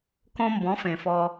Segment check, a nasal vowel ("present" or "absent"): present